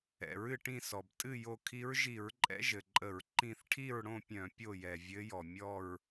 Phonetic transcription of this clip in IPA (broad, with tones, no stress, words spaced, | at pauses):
ɛ̰˩ɹɨ˥˨ʈĩ˥˨sɔ˩b tʼɨ˥˨jo˧ kʰi˧˥ɹʒi˧˩˧ɹǃʼɛ̰˧˥ ʒɘ˩ǃʼə˧˩˧ɹ ǃĩ˥˨θ ʈʰi˥˨ɹɽõ˥˨ pʲœ̃˧˩˧ pʲo˥˨jɛ˩vʲɘ˧˥jɔ˩ mʲɔ˥˨ɹ